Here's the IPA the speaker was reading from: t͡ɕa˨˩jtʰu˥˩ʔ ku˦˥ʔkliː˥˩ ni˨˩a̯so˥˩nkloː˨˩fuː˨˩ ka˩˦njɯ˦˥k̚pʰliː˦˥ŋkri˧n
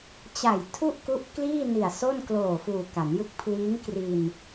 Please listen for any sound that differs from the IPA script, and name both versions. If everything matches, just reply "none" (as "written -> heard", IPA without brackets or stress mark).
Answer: none